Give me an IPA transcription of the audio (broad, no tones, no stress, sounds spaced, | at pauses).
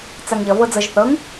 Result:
t͡s a ŋ ʎ ʌ v ɤ d͡z ɤ ʒ θ ɤ ŋ